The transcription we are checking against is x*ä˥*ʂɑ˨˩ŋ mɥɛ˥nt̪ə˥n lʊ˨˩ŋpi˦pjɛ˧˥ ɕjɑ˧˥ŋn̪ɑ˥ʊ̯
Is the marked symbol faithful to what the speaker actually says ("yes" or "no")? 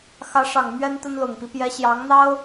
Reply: no